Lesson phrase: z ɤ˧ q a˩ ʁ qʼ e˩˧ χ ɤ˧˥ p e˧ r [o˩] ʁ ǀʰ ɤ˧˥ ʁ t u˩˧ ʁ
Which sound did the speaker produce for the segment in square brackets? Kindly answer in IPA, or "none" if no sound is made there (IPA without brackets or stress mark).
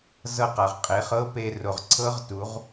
o˩